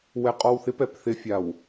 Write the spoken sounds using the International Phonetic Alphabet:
w ɛ qʼ ɔ w θ ɪ p ɛ p θ ɪ fʲ a w

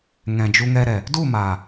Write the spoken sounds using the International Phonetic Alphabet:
ŋ ɛ̃˨ d͡ʒ u˧ ŋ ɛ˧ ɾ ɛ˨ | d u˦˨ m aː˨

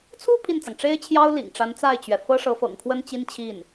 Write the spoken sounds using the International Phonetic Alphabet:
t͡sʰ u˥˧ pʰ i˥˩ n t͡s ɑ˩ ŋ ʈ͡ʂ e˥ ɪ̯ t͡ɕʰ j ɑ˥ ʊ̯ l ḭ˨˩ ŋ ʈ͡ʂ a˧˥ n t͡s a˥˩ ɪ̯ t͡ɕ ɥ ɛ˩ f ɤ˥ ʂ ɤ˧˥ f ɤ̰˨˩ ŋ kʰ w ə˥ n t͡ɕ i˥ n t͡ɕʰ i˥˩ n

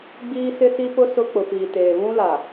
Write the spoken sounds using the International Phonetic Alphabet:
ɡ͡b iː˦ s ɪ˦ s i˦ p ʊ˦ s ʊ˦ k͡p ʊ˨ p iː˨ t eː˨ β ũ˦ l a˨

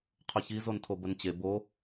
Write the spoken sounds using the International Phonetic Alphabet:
qʰ ɵ ç i z o n tʰ o b ə n t͡ɕ e b o

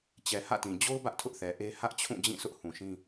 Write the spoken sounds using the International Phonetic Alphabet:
t͡ɕ ɛ˨ h ä̰˦˨ t ĩ˨ d͡ʑ o˦ ʊ̯ b ä˦ ʔ tʰ ʊ˦ ʔ θ ɛ˨ ʔ e˦ h ä˦ ʔ t͡ɕʰ ũ˦˨ d͡ʑ ĩ˦˨ s ʊ˦ ʔ h ũ˨ ʃ ĩ˦

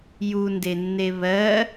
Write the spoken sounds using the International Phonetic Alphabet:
j u n d e nː e β ɜ

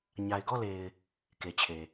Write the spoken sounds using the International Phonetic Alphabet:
ɲ a˨ ɪ̯ ɡ ɔ˦˨ l e˨ ɪ̯ | k e˨ t͡ɕʰ e˨

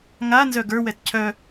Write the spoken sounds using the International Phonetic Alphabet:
ŋ a n z œ ɡ ə˞ w ɛ t cʰ œ

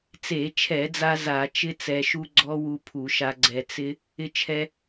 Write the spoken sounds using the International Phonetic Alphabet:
t͡s e˧˩˧ t͡ʃʰ ɛ˧˩˧ d͡z a˧ z a˧˩˧ t͡ʃ ɪ˦˥ t͡s ɛ˧ ʃ u˦˥ ɡ͡ǀ ɔ˦˥ w u˧ pʰ u˧˩˧ ʃ a˧ ɡ͡ǀ ɛ˧ t͡s ɪ˦˥ | ɪ˧ t͡ʃʰ ɛ˧

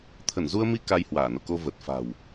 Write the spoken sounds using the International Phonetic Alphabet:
t̪ʰ ə˧˩ n z u˧ ə̯ m i˧ k a˧ j h w aː˧˩ n o̰˧˨ k o˧ v ə˨˩ t̚ f a̤˨˩ w

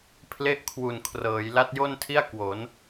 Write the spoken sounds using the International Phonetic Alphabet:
pʰ l e˥˩ ʔ kʰ w u˨˩ n kʰ r ɤː˩˦ j l a˦˥ t̚ j o˥˩ n tʰ i˥˩ a̯ k w o˩˦ n

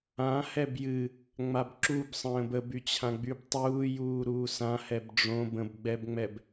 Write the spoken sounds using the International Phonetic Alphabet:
ã h ɛ b j ɨ | ŋ͡m a b ǁ u b sˤ ə̃ː b ə b y t͡ɕʰ ã ɡ͡b y b tˤ uː j uː ɾ uː s ã h ɛ b ɖ͡ʐ õ b ə̃ b ɡ͡b ɛ b ŋ͡m ɛ b

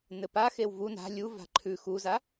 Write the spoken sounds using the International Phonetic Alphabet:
n ɘ p a x e w v u n a̤ lʲ u v a̤ ǃʰ ʉ x u z a

